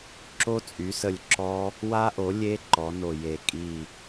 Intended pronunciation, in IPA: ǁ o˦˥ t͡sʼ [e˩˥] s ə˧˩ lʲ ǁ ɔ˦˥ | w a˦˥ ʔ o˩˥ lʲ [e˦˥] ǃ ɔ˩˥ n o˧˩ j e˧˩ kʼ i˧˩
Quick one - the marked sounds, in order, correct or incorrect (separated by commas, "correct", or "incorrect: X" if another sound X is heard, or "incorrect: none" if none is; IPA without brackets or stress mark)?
incorrect: y˩˥, correct